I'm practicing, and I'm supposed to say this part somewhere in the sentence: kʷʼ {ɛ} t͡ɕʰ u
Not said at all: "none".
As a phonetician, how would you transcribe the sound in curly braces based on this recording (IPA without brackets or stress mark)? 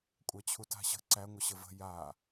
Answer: æ